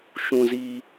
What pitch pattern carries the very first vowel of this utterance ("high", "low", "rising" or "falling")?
low